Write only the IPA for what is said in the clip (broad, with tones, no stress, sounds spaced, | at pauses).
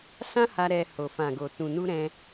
s ã˦ h a˧ ɾ ɛ˧ h o˨ f ã˨ ɡ o˨ t ũ˨ n u˧ ɾ ɛ̃˧